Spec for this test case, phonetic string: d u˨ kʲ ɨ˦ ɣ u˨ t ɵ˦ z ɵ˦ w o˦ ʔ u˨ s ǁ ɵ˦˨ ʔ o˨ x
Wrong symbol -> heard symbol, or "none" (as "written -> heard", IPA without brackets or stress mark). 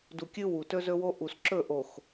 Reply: ɣ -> w